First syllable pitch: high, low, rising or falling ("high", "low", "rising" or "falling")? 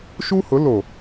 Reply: high